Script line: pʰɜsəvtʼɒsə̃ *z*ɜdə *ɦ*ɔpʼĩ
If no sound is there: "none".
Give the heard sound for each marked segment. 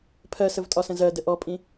z, ʔ

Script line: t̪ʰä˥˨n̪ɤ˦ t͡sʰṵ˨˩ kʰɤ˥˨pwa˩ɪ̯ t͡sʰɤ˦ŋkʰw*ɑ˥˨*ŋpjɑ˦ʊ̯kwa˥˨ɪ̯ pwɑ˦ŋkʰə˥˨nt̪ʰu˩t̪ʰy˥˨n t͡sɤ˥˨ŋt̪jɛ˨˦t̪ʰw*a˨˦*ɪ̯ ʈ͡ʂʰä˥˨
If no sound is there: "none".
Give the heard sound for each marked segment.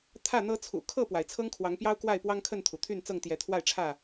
ɑ˨˦, a˥˨

